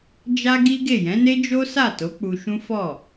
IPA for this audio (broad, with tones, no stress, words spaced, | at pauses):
d͡ʒa˦ɡi˦ɡe˦˨ jɛ̃˨˦ne˦ d͡ʒo˦sa˦˨to˨˦ k͡pu˧ʃũ˦ fɔ˦˨